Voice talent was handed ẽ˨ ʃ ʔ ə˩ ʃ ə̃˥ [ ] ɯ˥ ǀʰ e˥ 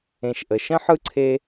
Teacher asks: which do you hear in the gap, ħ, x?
ħ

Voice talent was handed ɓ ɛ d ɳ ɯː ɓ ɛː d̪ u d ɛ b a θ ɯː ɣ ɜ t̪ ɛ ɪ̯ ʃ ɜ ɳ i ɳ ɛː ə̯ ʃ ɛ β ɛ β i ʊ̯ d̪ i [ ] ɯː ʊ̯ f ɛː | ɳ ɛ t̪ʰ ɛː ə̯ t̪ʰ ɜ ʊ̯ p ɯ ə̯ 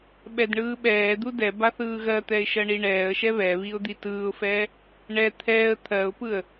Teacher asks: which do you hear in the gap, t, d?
t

